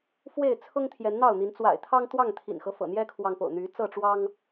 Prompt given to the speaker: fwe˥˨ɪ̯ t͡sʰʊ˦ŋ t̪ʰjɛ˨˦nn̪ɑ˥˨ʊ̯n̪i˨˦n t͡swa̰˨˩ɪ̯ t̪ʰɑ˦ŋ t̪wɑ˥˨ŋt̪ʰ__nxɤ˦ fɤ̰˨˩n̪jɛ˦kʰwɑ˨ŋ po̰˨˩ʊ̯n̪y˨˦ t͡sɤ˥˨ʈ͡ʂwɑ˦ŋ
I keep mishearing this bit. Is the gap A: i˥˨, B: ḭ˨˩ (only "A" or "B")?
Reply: B